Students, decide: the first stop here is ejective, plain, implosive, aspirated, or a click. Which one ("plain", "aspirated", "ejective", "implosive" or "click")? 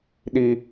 implosive